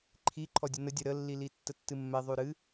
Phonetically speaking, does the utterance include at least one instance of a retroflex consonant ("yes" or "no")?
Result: no